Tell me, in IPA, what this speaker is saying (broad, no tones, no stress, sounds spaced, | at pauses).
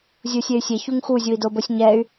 zʲ u sʲ e y̯ sʲ e ç u ŋ x u zʲ u i̯ d o b o sʲ ɲ ɛ y̯